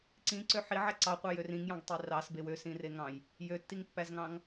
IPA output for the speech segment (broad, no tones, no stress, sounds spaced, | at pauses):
ǀ ĩ ǀ ø ħ i ʕ æ ǀ ɑ qʷ ɑ j ø r ĩ ŋ j ɑ̃ ɡ tˤ i r ɑ s b e w ø s ĩ r e ŋ ɑ̃ j | j ø tː i ŋ pː æ z ŋ ɑ̃ ŋ